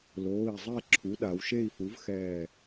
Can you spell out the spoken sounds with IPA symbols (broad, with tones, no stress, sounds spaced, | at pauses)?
l oː˩˧˩ i̯ zˤ ɛ˥˧ ǁʰ u˩˥ ɗ a˩˧ w ʃ e˥˧ i̯ f u˩˥ v x ɛː˧˩